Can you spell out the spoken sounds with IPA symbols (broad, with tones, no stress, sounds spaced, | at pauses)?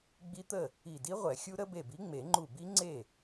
ɡ͡b i˦˥ t̪ ə˥˩ | i˧˩ d i˦˥ ʁʷ ɛ˨˩˦ xʲ u˦˥ ɾ ə˦˥ b e˧˩ b i˨˥ ŋ͡m e˨˩˦ ŋ͡ǃ u˧˩ b i˦˥ ŋ͡ǀ e˥˩